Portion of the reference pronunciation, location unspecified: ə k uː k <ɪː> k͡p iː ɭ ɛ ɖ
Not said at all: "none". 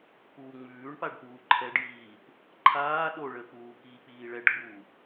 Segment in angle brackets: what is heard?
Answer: iː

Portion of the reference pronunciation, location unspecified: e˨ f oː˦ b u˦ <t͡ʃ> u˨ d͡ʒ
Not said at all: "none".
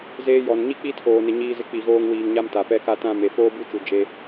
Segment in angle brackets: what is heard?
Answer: t͡ʃ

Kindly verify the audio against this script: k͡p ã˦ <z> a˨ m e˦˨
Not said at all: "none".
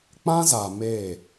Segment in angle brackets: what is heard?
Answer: z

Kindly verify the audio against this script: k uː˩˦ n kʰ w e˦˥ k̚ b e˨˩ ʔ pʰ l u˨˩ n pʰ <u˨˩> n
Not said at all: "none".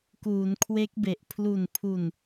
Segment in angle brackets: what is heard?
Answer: u˨˩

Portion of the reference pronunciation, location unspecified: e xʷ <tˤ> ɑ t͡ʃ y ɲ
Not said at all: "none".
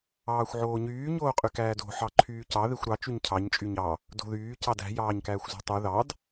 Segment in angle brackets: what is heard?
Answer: ɾ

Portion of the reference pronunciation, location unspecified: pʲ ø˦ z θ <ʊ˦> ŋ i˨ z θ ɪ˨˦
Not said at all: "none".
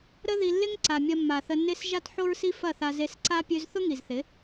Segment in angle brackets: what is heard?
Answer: ʊ˦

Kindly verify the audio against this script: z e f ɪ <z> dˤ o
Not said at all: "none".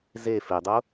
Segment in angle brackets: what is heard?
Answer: none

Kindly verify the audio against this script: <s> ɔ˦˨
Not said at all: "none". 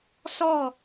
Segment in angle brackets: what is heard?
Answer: s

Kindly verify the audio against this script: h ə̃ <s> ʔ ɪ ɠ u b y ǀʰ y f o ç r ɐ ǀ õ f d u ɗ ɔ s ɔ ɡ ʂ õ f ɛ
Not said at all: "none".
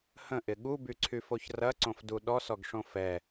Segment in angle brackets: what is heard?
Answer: none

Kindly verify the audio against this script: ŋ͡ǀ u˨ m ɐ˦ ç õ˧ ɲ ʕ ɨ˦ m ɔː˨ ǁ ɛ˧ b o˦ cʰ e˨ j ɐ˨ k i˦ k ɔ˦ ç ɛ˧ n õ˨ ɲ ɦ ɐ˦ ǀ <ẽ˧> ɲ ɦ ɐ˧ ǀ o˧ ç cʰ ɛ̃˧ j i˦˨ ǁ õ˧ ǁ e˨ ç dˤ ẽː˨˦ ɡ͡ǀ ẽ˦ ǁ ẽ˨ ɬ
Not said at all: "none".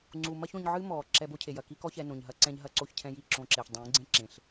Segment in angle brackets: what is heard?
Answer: ɛ̃˧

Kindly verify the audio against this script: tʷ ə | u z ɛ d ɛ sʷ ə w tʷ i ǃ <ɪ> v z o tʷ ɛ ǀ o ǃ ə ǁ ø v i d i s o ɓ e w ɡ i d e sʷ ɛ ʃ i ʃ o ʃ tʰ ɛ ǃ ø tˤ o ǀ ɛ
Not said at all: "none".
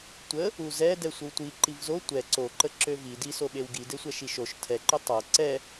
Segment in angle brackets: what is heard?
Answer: i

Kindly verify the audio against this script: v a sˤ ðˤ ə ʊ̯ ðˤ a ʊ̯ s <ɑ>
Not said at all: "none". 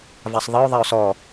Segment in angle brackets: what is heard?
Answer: ɔ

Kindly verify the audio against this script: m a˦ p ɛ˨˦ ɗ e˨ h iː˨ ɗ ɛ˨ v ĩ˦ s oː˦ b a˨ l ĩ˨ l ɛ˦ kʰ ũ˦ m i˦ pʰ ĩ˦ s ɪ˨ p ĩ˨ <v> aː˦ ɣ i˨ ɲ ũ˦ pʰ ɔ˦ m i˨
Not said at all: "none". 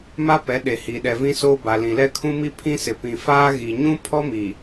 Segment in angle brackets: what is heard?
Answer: f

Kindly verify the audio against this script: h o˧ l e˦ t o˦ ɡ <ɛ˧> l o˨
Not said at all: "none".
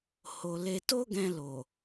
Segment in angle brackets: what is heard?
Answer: ɛ̃˧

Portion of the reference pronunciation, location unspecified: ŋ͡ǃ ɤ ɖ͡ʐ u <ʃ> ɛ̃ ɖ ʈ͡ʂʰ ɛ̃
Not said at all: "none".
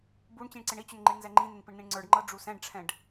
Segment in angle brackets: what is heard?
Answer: s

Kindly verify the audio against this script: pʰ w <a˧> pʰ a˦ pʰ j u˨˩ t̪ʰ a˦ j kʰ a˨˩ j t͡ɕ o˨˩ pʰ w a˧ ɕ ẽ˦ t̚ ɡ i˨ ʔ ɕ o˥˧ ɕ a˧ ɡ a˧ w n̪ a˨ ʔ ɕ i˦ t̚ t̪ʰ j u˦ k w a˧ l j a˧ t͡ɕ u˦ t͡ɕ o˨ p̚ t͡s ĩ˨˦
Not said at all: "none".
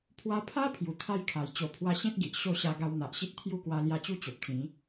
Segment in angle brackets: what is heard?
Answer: a˧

